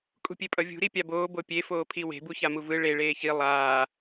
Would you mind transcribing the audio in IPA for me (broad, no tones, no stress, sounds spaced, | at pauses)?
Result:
kʼ ṳ pʲ e pʼ ʌ vʲ ṳ ɾ i pʲ a b oː b o pʲ e f oː pʰ i w e̤ b u ç a m u v ɯ ɭ e ɭ eː ç i lˠ aː